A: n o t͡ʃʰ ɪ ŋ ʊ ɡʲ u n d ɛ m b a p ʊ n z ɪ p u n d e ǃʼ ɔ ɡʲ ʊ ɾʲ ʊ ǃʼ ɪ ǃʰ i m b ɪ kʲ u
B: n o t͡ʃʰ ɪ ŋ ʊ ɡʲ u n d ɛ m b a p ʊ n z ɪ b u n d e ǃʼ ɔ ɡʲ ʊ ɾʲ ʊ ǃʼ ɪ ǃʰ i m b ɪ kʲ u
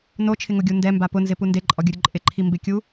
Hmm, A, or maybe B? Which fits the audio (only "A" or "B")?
A